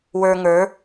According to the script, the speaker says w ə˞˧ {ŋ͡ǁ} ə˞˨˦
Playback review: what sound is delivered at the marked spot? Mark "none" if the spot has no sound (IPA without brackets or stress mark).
ŋ